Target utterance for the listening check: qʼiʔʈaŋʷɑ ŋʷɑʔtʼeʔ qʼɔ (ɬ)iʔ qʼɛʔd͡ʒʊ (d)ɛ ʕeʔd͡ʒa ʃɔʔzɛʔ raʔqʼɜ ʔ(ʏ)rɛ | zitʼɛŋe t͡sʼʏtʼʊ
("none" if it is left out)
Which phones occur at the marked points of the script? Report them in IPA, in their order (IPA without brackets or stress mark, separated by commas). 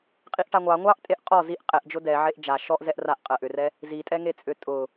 z, d, ʏ